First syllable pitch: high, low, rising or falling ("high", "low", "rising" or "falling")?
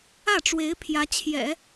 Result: falling